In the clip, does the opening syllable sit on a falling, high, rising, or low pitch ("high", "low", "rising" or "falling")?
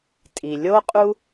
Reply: low